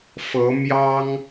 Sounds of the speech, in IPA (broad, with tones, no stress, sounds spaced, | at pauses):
f ɤ˧˥ m j ɑ˥ ŋ